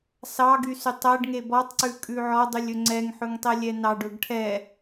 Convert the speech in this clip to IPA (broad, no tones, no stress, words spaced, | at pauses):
sɑɡysytˤ æɖŋe bɔtˤǀʉkʼʉ ʕɔdˤylʲɵ ŋ͡ǀɛŋħɵŋtˤɛlʲɛ nɑɖɵɡ ʈʰɛ